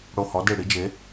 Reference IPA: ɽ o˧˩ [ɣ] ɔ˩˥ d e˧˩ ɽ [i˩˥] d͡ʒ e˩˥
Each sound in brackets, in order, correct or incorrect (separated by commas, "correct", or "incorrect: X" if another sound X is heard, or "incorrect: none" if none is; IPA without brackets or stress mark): incorrect: h, correct